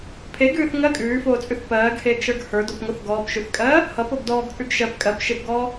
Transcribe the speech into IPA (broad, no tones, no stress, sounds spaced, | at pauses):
pʰ e ɡ ʉː θ ŋ ɜ kʼ ʉː f oː t͡sʼ ʉ θ p ɜː ɡ h eː ɡ ʃ ə˞ ɡ h ə˞ d ɔ p ŋ o θ ɡ ɔː p ʃ ʉ θ kʼ ɜː | h ʌ p o ɡ d ɔː ɡ t͡sʼ ʉ ɡ ʃ ɜ p kʼ ɜ p ʃ e p ɡ ɔː